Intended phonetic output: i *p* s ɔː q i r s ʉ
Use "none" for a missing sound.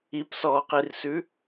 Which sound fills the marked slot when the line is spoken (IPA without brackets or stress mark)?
p